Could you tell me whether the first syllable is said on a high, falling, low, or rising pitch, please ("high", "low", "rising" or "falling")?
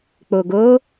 low